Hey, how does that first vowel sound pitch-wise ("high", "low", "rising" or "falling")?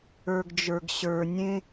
low